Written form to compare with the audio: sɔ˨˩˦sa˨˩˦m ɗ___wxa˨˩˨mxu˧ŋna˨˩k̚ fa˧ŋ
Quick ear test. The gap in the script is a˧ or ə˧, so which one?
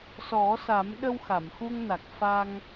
ə˧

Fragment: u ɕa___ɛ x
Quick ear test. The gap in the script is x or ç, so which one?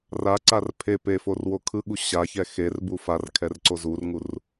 ç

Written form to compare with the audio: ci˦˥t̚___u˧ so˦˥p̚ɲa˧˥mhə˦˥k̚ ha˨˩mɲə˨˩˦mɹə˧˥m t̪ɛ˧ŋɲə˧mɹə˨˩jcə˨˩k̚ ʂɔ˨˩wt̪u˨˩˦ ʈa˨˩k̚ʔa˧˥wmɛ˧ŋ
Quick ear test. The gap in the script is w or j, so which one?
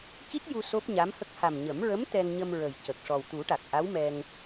j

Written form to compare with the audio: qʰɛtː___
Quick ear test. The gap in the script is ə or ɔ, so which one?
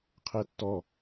ɔ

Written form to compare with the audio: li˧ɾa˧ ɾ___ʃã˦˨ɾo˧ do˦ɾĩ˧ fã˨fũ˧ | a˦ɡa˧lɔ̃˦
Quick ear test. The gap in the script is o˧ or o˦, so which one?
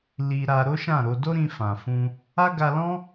o˦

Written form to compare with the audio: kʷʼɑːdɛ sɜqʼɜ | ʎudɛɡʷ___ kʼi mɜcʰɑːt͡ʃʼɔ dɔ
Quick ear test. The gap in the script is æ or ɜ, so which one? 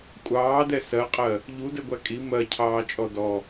æ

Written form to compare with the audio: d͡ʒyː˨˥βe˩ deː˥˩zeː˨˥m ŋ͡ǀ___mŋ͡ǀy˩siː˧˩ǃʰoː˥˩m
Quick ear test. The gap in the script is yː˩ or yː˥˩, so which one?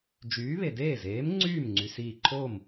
yː˥˩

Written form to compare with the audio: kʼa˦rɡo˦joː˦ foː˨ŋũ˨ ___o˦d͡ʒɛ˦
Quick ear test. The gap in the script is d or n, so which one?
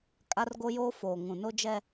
n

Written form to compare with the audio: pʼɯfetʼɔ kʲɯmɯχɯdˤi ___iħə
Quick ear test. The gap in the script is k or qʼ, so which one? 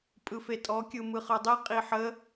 qʼ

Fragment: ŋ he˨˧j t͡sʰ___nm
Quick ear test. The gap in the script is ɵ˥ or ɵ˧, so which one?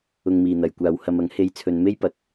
ɵ˧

